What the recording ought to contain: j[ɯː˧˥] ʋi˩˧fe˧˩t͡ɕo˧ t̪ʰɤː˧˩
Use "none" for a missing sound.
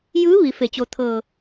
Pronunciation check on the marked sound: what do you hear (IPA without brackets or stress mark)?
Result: ɯː˧˥